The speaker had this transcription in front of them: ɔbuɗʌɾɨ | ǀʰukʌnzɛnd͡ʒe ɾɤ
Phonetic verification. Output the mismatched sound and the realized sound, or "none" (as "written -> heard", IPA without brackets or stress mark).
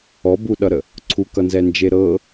ɨ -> ə